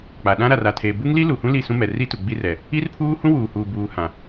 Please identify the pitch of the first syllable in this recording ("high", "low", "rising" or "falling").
low